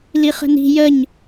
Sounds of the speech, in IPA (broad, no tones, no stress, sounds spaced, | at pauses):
l i χ ə̤ n i̤ j ə ɲ